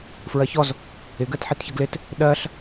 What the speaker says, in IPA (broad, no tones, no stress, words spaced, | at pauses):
fɹɜçɔz | ɪ ɡɜtħitçəɡlɪt | ɗɜɬ